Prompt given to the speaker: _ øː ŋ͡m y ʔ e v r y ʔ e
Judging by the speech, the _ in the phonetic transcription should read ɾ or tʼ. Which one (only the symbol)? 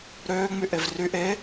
ɾ